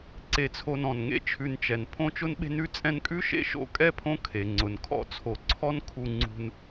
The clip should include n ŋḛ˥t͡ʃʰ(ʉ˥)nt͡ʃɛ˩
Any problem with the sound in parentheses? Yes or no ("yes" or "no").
yes